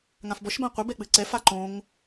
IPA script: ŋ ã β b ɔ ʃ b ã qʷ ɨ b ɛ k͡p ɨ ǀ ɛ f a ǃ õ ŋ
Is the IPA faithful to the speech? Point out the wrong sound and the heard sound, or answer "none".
β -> f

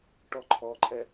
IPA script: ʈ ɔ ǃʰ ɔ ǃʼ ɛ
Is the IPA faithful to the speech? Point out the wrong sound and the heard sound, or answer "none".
none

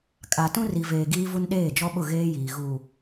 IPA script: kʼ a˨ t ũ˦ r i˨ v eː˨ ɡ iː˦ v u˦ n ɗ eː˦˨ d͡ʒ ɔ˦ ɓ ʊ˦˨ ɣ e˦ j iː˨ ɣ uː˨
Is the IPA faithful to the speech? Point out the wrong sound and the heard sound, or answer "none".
e˦ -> eː˦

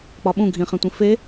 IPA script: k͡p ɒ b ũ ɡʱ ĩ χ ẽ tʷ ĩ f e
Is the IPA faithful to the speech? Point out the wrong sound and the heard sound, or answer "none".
b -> ɓ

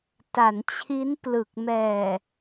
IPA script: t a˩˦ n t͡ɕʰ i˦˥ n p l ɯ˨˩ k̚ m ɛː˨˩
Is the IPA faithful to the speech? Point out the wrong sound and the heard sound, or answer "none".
none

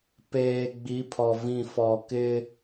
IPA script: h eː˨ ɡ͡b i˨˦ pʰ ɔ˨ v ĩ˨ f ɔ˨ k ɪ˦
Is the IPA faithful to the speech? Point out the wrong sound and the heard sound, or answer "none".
h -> p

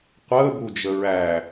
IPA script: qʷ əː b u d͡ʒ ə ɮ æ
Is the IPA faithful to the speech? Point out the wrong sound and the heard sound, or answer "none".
ɮ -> ɹ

